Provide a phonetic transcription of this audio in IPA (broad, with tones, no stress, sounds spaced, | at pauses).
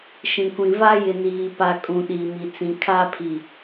ʃ ĩ˨ kʷ ĩ˨ v aː˦ j ɪ˨ n iː˨ p a˨ kʼ ũ˨ ɗ iː˨ m i˨ t͡s ĩ˨ kʰ aː˦ pʰ i˨